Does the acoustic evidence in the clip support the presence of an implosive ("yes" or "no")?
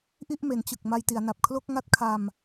no